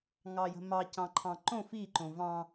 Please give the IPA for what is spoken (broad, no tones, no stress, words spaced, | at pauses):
ŋɑjə̤mɑ cɑ̃ǃʰɑ̃ǃõ fiǃõ vɑ̃